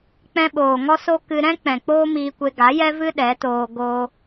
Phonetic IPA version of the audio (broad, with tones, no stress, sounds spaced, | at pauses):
k͡p ɛ̃˧ ɓ oː˨ ŋ ɔ˦ s o˦ k ɨ˧ ɾ ɛ̃˦ k͡p ɛ̃˨ k͡p oː˦ m iː˧ kʷ e˧ ɡ a˨˦ j ɛ˦ v ɨ˦ ɗ ɛ˨˦ t oː˧ ɡ o˦